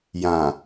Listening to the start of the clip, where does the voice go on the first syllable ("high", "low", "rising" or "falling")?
low